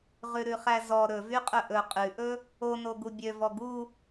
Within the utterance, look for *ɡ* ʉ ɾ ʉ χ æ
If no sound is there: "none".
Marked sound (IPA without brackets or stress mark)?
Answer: ʁ